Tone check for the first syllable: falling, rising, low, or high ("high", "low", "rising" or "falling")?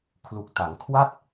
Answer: low